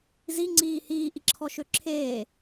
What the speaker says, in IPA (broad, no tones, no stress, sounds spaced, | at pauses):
z i ŋ͡ǀ iː h iː ʔ i ǁʰ ɔ ʃ ø ǁʰ eː